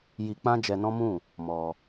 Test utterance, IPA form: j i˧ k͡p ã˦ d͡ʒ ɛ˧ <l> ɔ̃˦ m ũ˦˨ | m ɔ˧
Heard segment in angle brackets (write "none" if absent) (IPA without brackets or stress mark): n